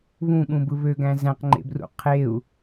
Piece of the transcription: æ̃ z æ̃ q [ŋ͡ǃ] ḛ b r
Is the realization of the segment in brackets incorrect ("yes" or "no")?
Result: no